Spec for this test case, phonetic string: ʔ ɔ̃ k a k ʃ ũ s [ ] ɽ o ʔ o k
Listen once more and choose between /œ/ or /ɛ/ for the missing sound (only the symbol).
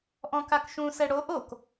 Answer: ɛ